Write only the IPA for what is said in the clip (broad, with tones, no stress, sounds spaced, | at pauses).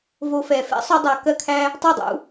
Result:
v o˧ f ɛ˨ f ɛ̰˦ sˤ o˧ dˤ a˨ k ɜ˧ kʰ æ˧ | tˤ o˦˨ dˤ ṵ˧